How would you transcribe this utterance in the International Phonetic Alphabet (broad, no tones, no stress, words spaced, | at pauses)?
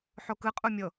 ħokɯqʼu mʲɤ